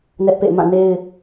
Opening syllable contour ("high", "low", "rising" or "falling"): high